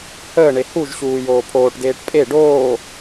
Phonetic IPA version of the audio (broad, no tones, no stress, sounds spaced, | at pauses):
h əː ɳ e h u ʒ ɕ uː j oː pʰ oː ʈ d eː ʈ pʼ e ɖ oː